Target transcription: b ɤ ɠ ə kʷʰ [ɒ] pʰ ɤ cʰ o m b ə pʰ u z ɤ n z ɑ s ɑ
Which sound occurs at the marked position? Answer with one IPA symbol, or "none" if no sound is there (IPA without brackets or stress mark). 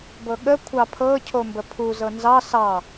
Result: ɑ